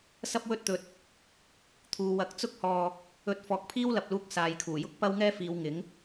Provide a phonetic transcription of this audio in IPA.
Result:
sɐ˥p̚wɵ˥t̚t̪ɵ˧t̚ | t̪ʰuː˨wɐ˨˥k̚t͡sʊ˥k̚hɔː˧ | ɵ˧t̚ fɔː˨˥k̚pʰiː˥wlɐ˨p̚luː˧k̚ saː˨jkʰuː˨˩jʊ˥k̚ pɐ˥wŋɛː˥fiː˨˧w ŋɪ˨˥ŋ

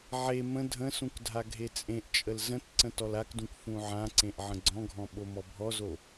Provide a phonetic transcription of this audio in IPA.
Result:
ʕe mə̃ dʱə̃sũk dʱaɡʱet͡sʼẽʔt͡ʃʼəl zə̃t ǀə̃tɔlakdũk fũʕãǀẽʔ ʕə̃ɡ͡ǀɔ̃ɡʱɔ̃ ɓomɔbʱɔzo

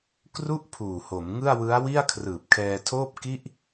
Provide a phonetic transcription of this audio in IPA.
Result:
kru˥˩ʔpʰuː˨˩ho˩˦m ŋɯ˥˩a̯ wɯ˦˥a̯wi˥˩a̯ kʰrɯː˨˩p̚kʰɛː˧tʰoː˥˩p̚ ki˥˩ʔ

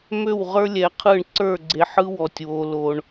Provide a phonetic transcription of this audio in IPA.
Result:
mø˦˨wʁə˞˦lʲɛ˨qʰɯ˦˨ɳ ǀə˞˦˨ɡ͡ǀe˨ħɯ˦ wɔ˦tʲwo˦lo˦ɳ

